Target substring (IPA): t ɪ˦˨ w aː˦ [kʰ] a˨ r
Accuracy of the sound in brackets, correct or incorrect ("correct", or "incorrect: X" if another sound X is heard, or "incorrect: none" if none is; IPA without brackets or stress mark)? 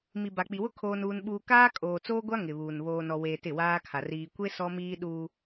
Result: correct